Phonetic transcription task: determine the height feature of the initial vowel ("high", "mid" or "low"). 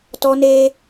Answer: mid